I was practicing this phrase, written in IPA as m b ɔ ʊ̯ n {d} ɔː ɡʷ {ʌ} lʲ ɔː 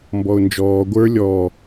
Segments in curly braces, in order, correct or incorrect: incorrect: d͡ʒ, incorrect: ə˞

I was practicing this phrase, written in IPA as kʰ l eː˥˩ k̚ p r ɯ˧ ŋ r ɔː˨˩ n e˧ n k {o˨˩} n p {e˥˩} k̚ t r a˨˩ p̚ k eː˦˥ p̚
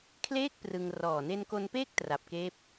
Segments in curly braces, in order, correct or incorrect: incorrect: o˧, incorrect: eː˥˩

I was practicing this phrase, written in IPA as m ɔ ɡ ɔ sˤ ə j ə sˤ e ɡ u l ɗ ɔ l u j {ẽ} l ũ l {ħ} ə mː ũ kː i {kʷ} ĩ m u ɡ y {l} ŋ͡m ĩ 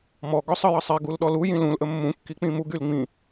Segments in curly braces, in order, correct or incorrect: incorrect: ĩ, incorrect: ʔ, incorrect: k͡p, correct

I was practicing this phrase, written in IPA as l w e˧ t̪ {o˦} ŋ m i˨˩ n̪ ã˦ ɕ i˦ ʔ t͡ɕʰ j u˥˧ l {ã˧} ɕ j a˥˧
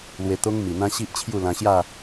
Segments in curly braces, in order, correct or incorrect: correct, correct

